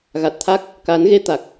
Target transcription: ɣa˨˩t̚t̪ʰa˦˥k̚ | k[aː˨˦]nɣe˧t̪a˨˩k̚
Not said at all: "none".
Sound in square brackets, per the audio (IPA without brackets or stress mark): aː˨˦